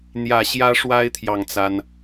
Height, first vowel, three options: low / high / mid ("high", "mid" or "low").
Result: low